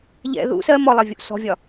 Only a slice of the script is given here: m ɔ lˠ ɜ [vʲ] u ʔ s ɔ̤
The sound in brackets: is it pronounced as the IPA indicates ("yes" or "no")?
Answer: yes